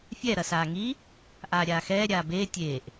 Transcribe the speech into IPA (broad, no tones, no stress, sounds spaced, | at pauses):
fʲ ɛ ɾ ɐ s aː ŋ i | ʔ aː ɾʲ aː x ɛː ɾʲ aː b eː tʲ eː ʔ